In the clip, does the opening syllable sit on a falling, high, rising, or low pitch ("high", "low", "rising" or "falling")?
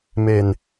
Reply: low